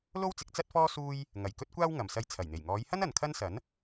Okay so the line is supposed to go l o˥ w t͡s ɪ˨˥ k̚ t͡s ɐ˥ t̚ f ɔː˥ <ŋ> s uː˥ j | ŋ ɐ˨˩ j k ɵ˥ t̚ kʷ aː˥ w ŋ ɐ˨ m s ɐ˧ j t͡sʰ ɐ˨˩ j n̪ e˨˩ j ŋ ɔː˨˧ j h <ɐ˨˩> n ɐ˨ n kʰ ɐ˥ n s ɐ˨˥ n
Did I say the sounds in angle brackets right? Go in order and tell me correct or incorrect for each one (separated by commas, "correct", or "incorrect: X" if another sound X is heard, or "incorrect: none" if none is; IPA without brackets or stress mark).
incorrect: none, incorrect: ɐ˥